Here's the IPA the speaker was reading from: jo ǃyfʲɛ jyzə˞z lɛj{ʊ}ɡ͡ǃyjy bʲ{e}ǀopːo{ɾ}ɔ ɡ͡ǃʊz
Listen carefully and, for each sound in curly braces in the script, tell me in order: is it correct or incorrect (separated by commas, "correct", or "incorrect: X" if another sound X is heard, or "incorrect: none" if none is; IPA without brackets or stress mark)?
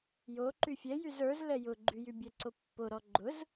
correct, incorrect: ɛ, correct